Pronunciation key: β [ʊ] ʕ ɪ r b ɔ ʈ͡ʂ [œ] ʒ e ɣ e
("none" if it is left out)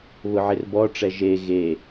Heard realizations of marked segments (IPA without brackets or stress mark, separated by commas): ʊ, ɛ